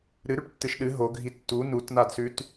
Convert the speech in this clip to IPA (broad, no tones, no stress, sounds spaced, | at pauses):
ɾ ɨ ɾ ʉ ʈ tː ɨ ʃ ɗ ɨ ɦ o ɡʱ i tː u n u t n a d s ʉ t